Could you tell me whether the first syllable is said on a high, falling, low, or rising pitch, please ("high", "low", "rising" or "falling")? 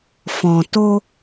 low